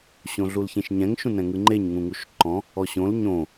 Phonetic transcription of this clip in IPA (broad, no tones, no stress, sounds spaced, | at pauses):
ɕ õ ɮ u l ç ẽ ʃ ɲ ɛ̃ ŋ ʃ ũ n ɛ̃ ŋ ɯ ŋ͡ǃ e ɲ ŋ ũ ŋ u ʃ ǃ ɔ̃ | ɔ ɕ õ l ɲ õ